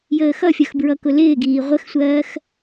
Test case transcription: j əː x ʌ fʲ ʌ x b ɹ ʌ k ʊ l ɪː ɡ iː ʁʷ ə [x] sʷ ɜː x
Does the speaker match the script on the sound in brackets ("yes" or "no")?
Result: yes